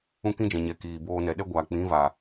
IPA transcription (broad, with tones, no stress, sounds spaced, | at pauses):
ũ˦ k ĩ˦ d͡ʒ ɛ̃˨ ɲ ɛ˨ k iː˨ b oː˧ n ɛ˨ ɗ ɛ˦ ɡʷ aː˨ k͡p ĩ˨˦ v aː˨